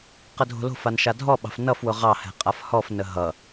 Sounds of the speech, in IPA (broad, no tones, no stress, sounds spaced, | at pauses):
q ə dʱ o̤ l o̤ f a n ʃ a dʱ ɔ ɓ ɑ̤ f n ʌ f w ʊ ʁ ɑ h ɛ̤ qʼ a f h ɔ f n ə ɦ ʌ